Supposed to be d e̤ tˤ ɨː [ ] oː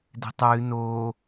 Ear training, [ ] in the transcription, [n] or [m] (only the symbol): n